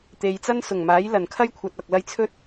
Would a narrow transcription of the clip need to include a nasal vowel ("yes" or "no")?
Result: no